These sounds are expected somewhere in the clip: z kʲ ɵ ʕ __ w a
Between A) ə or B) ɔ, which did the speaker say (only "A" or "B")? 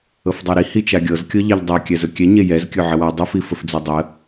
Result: A